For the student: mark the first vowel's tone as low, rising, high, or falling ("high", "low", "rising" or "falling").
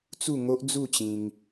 falling